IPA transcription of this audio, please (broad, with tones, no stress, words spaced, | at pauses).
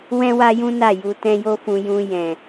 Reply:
wɛ̃˦wa˦jũ˦ na˦˨ju˧ tɛ̃˧jo˧fũ˨ jũ˨ jɛ̃˨